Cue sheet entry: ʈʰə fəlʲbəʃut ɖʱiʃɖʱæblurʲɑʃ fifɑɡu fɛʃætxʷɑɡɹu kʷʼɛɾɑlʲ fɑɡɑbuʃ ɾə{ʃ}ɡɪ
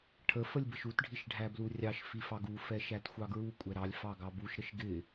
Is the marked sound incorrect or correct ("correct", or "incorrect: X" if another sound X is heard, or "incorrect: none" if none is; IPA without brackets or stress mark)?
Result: correct